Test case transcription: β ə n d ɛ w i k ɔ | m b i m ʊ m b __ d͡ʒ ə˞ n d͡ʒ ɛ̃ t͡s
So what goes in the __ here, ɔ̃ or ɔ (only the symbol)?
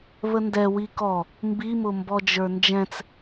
ɔ